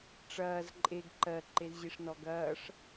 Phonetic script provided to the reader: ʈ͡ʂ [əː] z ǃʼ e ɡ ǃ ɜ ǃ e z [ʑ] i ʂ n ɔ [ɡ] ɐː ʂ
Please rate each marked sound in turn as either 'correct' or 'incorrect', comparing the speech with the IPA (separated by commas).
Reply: incorrect, correct, correct